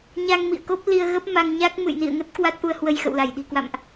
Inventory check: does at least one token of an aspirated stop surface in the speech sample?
no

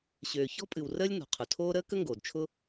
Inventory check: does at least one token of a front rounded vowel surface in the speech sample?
yes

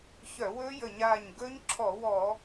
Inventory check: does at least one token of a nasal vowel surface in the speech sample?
no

